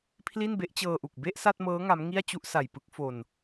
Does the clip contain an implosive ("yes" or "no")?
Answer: no